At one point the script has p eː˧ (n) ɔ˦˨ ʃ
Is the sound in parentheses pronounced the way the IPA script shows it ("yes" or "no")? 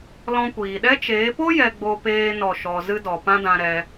yes